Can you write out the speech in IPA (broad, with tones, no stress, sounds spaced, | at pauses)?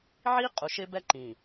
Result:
ʕ i˦ qʼ u˨ ʃ ɪ˦ b ɛ˦ ǃ ĩ˨